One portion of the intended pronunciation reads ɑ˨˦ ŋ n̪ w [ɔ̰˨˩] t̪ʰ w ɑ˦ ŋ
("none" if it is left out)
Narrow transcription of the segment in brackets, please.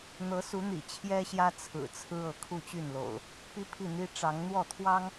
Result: ɔ˥˨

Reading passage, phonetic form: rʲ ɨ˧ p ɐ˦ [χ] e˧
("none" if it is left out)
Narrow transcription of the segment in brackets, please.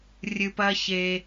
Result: ç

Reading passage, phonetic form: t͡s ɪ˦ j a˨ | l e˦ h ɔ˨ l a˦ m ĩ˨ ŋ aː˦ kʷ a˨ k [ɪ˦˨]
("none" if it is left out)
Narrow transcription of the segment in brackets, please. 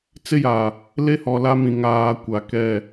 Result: ɛ˦˨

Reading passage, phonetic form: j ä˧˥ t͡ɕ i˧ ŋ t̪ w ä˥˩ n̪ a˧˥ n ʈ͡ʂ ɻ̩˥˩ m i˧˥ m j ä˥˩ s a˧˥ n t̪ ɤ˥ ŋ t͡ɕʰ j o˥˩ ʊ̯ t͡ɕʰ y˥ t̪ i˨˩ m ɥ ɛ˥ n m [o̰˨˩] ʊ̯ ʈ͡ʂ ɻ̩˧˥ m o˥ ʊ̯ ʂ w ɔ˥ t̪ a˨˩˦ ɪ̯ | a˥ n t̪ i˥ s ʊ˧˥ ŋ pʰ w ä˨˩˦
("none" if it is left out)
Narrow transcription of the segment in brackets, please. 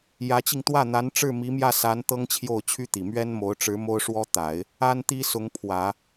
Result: o˧˥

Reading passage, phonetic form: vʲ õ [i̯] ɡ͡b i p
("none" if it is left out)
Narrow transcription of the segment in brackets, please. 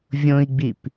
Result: i̯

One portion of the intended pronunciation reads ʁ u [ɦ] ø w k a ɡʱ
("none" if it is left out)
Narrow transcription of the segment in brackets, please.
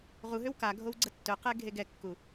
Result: ɦ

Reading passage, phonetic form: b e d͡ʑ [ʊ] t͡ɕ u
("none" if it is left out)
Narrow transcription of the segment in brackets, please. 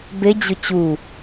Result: ʊ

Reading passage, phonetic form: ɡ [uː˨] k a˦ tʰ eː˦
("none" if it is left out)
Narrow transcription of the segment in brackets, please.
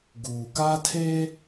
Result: uː˨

